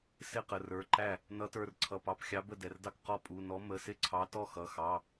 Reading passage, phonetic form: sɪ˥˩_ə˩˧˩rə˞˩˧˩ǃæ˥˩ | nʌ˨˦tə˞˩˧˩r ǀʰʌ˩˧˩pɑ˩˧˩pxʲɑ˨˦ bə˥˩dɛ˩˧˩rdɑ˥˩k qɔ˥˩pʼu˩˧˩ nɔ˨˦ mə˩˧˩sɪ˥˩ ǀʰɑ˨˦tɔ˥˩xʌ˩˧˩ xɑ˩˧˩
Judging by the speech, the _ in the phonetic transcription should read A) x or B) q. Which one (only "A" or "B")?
B